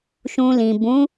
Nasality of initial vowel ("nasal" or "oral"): nasal